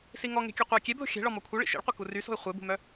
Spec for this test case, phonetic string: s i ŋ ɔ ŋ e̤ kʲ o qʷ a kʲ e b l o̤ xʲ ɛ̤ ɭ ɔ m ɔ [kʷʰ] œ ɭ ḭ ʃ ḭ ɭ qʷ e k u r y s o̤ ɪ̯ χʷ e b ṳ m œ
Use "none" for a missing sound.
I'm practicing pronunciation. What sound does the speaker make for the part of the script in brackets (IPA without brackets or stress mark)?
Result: kʷʰ